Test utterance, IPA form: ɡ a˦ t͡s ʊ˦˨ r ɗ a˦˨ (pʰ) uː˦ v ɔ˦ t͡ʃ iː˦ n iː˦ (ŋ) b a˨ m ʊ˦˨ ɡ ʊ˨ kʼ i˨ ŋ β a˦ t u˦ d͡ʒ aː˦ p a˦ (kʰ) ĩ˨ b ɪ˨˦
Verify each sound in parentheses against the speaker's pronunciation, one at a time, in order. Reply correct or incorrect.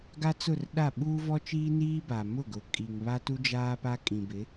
incorrect: ɓ, incorrect: none, incorrect: kʼ

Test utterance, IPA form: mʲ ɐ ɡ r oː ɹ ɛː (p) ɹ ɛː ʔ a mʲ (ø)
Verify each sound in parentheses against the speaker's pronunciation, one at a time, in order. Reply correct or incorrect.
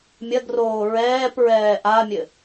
correct, incorrect: ɘ

